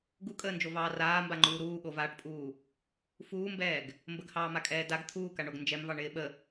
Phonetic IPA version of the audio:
ɡ u kʼ əː n d͡ʒ o v ɑː r aː m b a ŋ͡ǃ uː ɾ uː ɠ o v aː ʈ pʼ uː | f uː m b ɛː ɡ | m b ə ɡ h ɑː m a kʼ ɛː d a ɡ t̪ʰ uː k a ɳ o ɡ n d͡ʒ ɛ m v ɑ ɳ ɪː ɓ ə

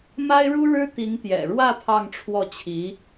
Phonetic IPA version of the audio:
m a˥ ɪ̯ ɻ u˥ ɻ ɻ̩˥ t̪ i˧˥ ŋ t̪ j ɛ̰˨˩ ɻ w ä˥˧ pʰ ɑ˥˧ ŋ ʈ͡ʂʰ w ɔ˥˩ t͡ɕʰ i˧˥

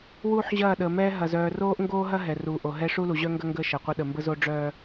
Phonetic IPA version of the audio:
w uː˦ ħ ʑ ɐː˦˨ ɗ əː˨ m ɛː˦ ɦ ɐ˨ z œː˨ r oː˦ ʔ ŋ ɡ oː˦ ɦ ɐ˦ ɦ ɛ˨ r uː˨ ʔ o˨ ɦ ɛ˦ ʂ u˦ l u˨ ʑ œ˦ ŋ ɡ ɐ˦ ŋ ɡ əː˦ ʃ ɐ˨ qʷ ə˦ ɗ ə˨ m b ə˦ z o˦ ɖ͡ʐ œː˦

